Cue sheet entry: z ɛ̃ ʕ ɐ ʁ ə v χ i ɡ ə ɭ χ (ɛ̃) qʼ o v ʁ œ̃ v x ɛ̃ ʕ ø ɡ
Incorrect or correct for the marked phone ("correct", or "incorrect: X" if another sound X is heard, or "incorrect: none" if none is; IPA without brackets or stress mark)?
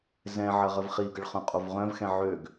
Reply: incorrect: œ̃